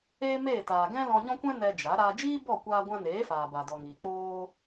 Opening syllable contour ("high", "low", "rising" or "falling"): high